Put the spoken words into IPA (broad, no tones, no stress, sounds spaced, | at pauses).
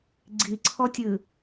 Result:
ɡ͡ǀ i ǀʰ ɔ tʲ ɨ